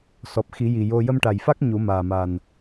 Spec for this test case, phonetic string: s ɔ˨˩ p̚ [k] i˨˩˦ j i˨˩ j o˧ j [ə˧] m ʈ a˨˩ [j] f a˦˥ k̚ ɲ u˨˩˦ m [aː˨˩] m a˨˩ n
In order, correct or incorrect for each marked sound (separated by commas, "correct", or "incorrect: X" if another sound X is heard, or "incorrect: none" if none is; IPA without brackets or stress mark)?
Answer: incorrect: x, correct, correct, correct